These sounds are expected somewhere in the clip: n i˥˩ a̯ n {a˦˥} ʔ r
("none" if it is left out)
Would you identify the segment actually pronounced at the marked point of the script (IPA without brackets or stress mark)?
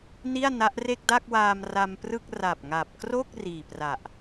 a˦˥